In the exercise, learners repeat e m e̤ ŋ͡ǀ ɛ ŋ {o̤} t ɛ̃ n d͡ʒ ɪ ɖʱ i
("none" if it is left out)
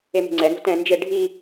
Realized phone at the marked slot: o̤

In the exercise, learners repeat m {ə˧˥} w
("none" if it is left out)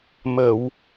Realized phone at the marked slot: ə˨˩˨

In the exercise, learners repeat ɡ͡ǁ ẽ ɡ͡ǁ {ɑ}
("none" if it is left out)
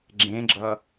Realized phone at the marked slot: ʌ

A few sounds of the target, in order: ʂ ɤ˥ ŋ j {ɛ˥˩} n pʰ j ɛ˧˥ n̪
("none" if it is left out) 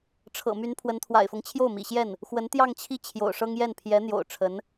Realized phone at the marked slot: ɛ˥˩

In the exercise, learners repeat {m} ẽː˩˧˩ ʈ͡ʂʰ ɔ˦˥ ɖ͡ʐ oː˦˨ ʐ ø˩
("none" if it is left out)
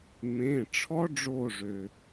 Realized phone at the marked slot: m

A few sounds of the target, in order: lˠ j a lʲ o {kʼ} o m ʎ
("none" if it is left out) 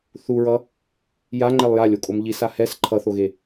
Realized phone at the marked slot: kʼ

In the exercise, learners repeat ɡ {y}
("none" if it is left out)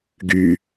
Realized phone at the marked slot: y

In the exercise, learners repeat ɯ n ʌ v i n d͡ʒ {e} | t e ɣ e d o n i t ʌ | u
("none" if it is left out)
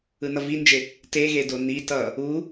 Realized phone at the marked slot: e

